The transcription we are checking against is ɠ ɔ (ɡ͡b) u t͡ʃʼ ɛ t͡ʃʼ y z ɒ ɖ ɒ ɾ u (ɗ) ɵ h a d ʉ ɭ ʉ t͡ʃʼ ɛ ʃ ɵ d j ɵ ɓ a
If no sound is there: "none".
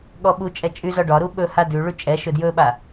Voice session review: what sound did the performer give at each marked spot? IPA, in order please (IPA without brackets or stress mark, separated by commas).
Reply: ɓ, ɓ